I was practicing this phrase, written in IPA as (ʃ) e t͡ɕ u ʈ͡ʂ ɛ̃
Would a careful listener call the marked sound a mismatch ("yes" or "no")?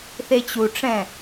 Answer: yes